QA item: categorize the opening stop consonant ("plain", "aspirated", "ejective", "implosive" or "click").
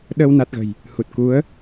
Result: implosive